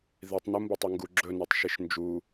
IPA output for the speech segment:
ð i tˤ n u m b ɐ tˤ i ŋ ɡ u ɡ͡ǁ ɵ n i tˤ ʃ i ʃ n d͡ʒ u

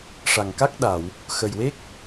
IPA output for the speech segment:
ʂ a˨˩ ŋ k a˦˥ k̚ ɗ a˨˩˨ w | x ə˨˩ j w e˦˥ k̚

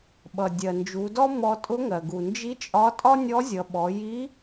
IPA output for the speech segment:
ɓ ʌ˩ dʲ ɜ˩ n d͡ʒ u˩˧ d ɔ˥ m ɔ˧ tʼ ʊ˧˥ ŋ ɜ˩ ɡ u˩ n d͡ʒ i˧˥ t͡ʃʼ ɒ˧˥ tʼ ɒ˥ nʲ ɔ˧˥ zʲ ʌ˩˧ ɓ ɔ˩˧ j i˧˥

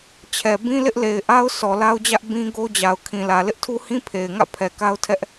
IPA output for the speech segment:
t͡ɕʰ ɛ˨ b ĩ˦ l ɪ˦ ʔ l e˨ ɪ̯ ʔ a˦ ʊ̯ s ɔ˨ l a˦ ʊ̯ d͡ʑ ä˦ ʔ b ĩ˦ ɡ o˦ d͡ʑ a˨ ʊ̯ kʰ ĩ˨ l ä˨ l ɪ˦ ʔ tʰ u˦ h ĩ˦ pʰ e˨ ɪ̯ ŋ ä̰˦˨ pʰ ɛ˨ k a˦ ʊ̯ tʰ ɛ˦ ʔ

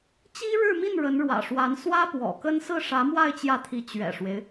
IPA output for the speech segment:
t͡ɕ i˥ ɻ ɻ̩˥˧ m i˥˩ n ɻ ə˧˥ n ɻ w ä̰˨˩ ʂ w a˧˥ n s w ä˥ p w ɔ̰˨˩ k ə˥ n s ɹ̩˥˩ ʂ ä˧˥ m w a˥˧ ɪ̯ t͡ɕ j ä˥˩ t̪ʰ i˧˥ t͡ɕ ɥ ɛ̰˨˩ ʂ w e˦ ɪ̯

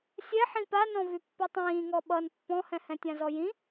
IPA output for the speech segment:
sʲ ɛ ħ ĩ p a n ɔ̃ v y pː y tˤ ĩː ŋ ɔ ɓ ʌ n pː ɔ̃ h ɛ̃ h ɛ̃ tʲ ã z ɔ j ĩ

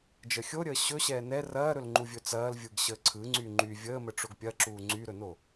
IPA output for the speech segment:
d͡ʒ ə xʲ o ɾʲ əː ɕ ɵ ɕ ɛː n ɛ r ɐː ɾ ɵ l ŋ͡ǃ u vʲ ɵ t͡s ɐː l vʲ ɯ ɡ ɕ əː ǀʰ ɯ ŋ͡ǀ y ŋ͡ǃ y vʲ əː m ə ʈ͡ʂ o ɡ pʲ ɐ ǁ uː ŋ͡ǀ y ɾ ɵ n o

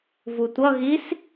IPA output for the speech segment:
v u tʷ ʌ ɣ i s

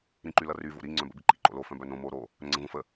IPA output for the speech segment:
ɾ ĩ ǃ y l ʌ r y v o̰ ɾ i ŋ͡ǀ œ̃ b ə̰ b i ǃ ḭ ǃ o̰ l o f œ̃ b œ n õ m o ɾ o | ɾ œ̃ ŋ͡ǀ ə̃ v õ f ə

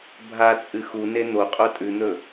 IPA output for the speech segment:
bʱ a t͡sʼ ɨ x u n e n̪ o qʼ o tʼ ʉ n̪ ɵ

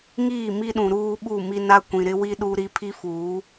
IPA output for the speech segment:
ŋ iː˦˨ m i˦ ɗ ũ˨ ɾ uː˦ ɓ u˦˨ m i˦ n a˦ kʷ ĩ˨ ɾ ɪ˦ w i˦ ɗ u˦ ɾ i˦ pʰ i˦ f uː˨˦

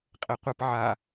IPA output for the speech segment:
qʼ e qʷ ɘ p ʕ a

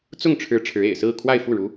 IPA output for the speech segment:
t͡s ʊ˥˩ ŋ ʈ͡ʂʰ ɻ̩˧˥ ʈ͡ʂʰ ɻ̩˧˥ ḛ˨˩ ɪ̯ s ɹ̩˥˧ kʰ w a˥˧ ɪ̯ f u˥˩ ɻ u˧˥

